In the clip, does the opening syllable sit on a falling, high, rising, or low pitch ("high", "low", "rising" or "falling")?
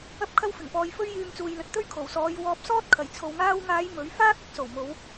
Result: high